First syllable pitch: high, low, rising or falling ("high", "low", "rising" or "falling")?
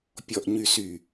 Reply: low